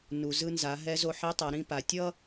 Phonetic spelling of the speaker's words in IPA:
n u˩ z ɯ˧ n z a˩˧ ɦ ɛ˧˥ z o˧ ħ i˧˥ tˤ ʌ˩˧ ɾ ĩ˧ p a˩ tʲ ʌ˥

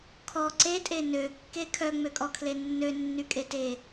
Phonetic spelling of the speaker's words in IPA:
kʰ ɔ ǀ e tʼ e n ø kː e kʰ œ ŋ͡m ø kʼ ɔ kʰ l e nː ø nː y kʼ e t e

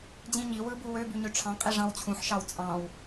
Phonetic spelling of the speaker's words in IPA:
d͡ʑ ĩ ɲ i w ɯ b u w ø b y ɲ ø ʈ͡ʂʰ ɑ̃ qʼ i ʐ ɑ̃ w t͡ɕʰ ũ ħ ʃ ɑ w t͡sʼ ɑ̃ w

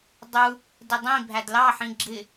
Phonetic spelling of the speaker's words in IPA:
dˤ u | d ɪ dˤ ĩ bʱ æ d l ɑ ħ ĩ ɡ͡ǁ ɪ

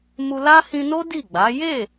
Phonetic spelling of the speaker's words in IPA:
m u˧ l a˦ h ĩ˧ n o˦ d i˦˨ ɡ͡b a˨˦ j e˦˨

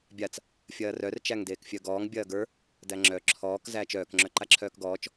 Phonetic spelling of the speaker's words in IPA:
bʲ a t͡s | fʲ ɐː r œ r t͡ʃ æ ŋ d eː k fʲ œ ɡ ɔː ŋ bʲ ɐː ɡ ə˞ | d æ ŋ͡ǁ œ ǁʰ ɔː k z æː t͡ʃ œː k ŋ͡ǁ œ ǃ a ǁʰ œː k ɡ ɔː t͡ʃ

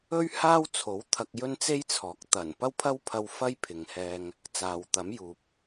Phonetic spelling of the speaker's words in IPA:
ɵ˥ ɥ h aː˥ w t͡sʰ o˨˥ w t̪ʰ ɐ˧ k̚ j ɵ˥ n t͡s e˥ j t͡sʰ ɔː˨˥ k̚ t̪ ɐ˨˩ n p ɐ˥ w pʰ ɐ˥ w pʰ ɐ˧ w f ɐ˥ j pʰ ɪ˨ ŋ h ɛː˧ ŋ | t͡s aː˨ w t̪ ɐ˨˥ m j uː˨ p̚

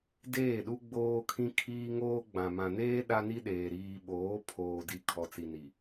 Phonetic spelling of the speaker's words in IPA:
d eː˦˨ ɗ u˦ ɡ͡b oː˦ kʰ ĩ˦ kʰ iː˦ ŋ oː˦ ɡ͡b ã˨ m ã˨ n eː˦ ɗ a˦ n i˦ ɗ eː˨ ɾ iː˨ ɓ oː˨˦ pʰ oː˨ d i˨ kʰ ɔ˨ t͡s i˨ n i˨

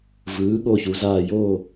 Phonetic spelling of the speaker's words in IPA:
v ɯː˩˥ ɠ o˦˨ ç u˩˥ z aː˦˨ j oː˦˨

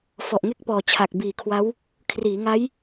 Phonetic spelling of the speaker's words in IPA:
f ɔ˨˩ ʔ ŋ e˥˩ k̚ p ɔː˨˩ t͡ɕʰ a˨˩ k̚ b iː˨˩ kʰ w a˦˥ w | kʰ r iː˩˦ ŋ a˦˥ j

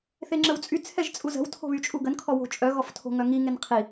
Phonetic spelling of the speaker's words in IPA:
θ e ŋ͡ǁ ə w t͡sʼ y t͡sʰ ɛ ʒ t͡sʼ u z ə̤ w tʰ o̤ β y t͡ʃʼ u ɡ ə n kʰ ɔ w o̤ t͡ʃʼ œ ɣ ɔ f tʰ o̤ ŋ œ ŋ i ŋ e n qʰ i

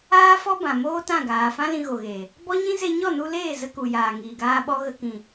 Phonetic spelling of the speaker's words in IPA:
aː˦ f ɔ˦ b ã˨ m oː˦ t ã˦˨ ɡ aː˨ f ã˦ l ĩ˧ ɣ o˨ ɣ eː˨ | b ɔ˦ ɲ ĩ˦ z e˧ ɲ ɔ˦˨ n u˧ l eː˦˨ z ə˧ k u˨ j aː˨ ŋ iː˨ ɡ aː˧ ɓ ɔ˧ ɣ ə˧ k ĩ˨

